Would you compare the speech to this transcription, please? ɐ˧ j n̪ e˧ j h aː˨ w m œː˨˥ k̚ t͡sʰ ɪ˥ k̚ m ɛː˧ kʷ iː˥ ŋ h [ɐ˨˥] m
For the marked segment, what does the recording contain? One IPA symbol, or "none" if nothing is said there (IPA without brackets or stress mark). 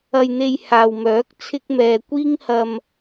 ɐ˧